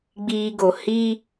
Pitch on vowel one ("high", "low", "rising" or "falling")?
high